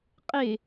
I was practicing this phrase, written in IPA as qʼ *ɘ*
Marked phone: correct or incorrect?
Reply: incorrect